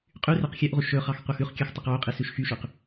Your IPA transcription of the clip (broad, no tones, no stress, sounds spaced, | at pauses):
qʼ y r ɛ q xʲ œ ʔ ʁ u ʃ ɵ χ ɑ x qʷ ɑ x ʉ χ kʲ œ x tˤ u q w o qʼ i s ʉ ʃ x y ʃ y q